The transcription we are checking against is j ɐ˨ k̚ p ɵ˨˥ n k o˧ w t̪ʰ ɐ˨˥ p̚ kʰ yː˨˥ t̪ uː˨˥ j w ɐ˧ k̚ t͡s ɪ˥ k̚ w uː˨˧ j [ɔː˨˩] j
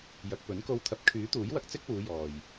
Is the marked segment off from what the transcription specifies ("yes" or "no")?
yes